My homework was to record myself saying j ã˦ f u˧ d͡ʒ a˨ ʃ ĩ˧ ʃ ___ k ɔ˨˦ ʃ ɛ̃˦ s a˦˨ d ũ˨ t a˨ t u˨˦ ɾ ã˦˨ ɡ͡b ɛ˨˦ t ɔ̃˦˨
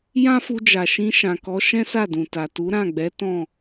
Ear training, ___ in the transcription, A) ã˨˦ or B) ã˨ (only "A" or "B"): B